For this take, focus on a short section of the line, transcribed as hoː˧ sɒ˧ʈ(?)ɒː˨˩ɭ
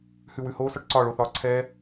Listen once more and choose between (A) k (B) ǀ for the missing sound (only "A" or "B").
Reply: B